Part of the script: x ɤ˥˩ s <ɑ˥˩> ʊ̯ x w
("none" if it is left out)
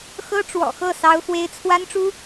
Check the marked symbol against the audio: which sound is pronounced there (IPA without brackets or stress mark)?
ɑ˥